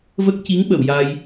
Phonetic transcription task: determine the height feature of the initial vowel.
mid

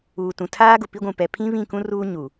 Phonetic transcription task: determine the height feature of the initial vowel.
high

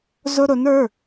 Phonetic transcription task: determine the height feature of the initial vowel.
high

